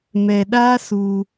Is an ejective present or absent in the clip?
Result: absent